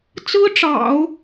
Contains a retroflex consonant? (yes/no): yes